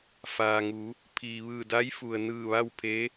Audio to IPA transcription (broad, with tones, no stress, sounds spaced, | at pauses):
f aː˩ ŋ u˩˧ | pʰ iː˩ ʋ ɯː˧˩ d a˧˥ j f u˩ ə̯ n ɯː˧˩ ʋ a˥˨ w pʰ e˧˥